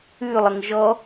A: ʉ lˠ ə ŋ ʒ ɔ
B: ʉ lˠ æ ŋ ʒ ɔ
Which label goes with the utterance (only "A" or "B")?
A